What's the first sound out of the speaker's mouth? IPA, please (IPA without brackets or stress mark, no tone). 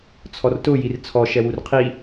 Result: t͡sʰ